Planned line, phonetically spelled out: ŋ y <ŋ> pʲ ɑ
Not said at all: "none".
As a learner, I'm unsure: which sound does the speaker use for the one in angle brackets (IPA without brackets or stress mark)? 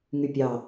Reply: none